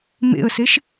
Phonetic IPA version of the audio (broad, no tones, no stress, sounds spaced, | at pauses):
m ḛ ə̯ s e ʃ